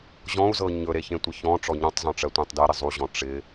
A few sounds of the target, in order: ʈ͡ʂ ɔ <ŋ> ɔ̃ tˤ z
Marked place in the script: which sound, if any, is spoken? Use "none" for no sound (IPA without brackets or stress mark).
ɲ